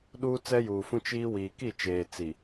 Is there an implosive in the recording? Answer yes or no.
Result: yes